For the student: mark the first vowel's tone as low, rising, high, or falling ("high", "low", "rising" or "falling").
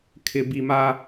high